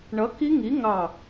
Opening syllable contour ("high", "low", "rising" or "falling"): rising